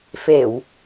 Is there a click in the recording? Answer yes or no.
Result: no